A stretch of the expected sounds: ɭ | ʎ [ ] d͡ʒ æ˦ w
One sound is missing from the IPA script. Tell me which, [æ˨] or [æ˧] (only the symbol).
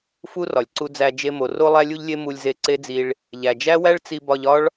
æ˨